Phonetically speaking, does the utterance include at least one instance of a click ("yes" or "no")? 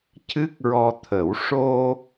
no